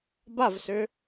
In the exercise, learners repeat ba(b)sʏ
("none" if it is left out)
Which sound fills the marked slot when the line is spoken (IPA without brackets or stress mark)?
v